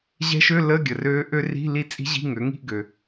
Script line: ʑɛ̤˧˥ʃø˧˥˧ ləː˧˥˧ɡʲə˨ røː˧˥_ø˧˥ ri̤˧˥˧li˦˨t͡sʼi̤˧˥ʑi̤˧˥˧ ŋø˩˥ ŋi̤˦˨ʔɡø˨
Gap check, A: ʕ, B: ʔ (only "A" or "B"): B